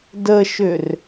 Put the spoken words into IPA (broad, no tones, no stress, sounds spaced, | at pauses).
d ə ʃ ʏ r